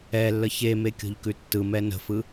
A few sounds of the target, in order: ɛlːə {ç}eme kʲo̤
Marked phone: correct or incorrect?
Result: correct